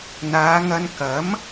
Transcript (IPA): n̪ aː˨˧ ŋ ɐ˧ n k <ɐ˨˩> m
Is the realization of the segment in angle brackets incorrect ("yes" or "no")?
yes